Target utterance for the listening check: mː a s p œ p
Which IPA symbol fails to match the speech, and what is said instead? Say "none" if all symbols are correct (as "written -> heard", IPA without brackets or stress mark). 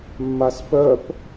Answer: none